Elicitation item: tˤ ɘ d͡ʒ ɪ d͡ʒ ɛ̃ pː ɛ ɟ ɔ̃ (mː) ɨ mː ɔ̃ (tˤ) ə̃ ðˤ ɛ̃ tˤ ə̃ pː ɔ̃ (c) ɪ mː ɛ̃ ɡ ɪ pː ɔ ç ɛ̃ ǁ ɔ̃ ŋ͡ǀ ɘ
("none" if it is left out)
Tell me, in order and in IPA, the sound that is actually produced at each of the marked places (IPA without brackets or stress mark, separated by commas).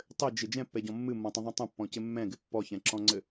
mː, tˤ, c